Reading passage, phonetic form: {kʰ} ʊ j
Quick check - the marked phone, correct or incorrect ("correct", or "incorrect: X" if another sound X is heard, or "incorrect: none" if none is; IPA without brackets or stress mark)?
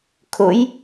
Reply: correct